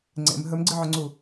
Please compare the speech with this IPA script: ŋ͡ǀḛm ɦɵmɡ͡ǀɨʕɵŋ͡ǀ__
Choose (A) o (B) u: B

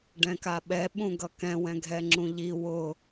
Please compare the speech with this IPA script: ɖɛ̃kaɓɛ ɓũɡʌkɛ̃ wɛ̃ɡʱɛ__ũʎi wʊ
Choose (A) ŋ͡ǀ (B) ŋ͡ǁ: B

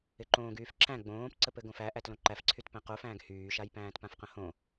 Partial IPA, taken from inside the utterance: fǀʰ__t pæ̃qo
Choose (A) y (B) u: A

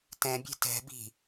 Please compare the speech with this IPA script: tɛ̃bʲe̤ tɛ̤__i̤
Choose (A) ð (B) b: B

